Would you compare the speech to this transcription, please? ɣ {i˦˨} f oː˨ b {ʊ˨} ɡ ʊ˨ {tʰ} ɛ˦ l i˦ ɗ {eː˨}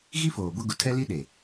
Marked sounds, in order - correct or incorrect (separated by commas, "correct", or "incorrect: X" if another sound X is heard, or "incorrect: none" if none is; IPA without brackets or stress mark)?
incorrect: i˦, incorrect: ʊ˦, correct, incorrect: e˨